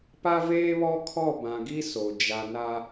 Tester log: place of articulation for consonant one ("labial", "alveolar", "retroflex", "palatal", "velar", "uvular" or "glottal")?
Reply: labial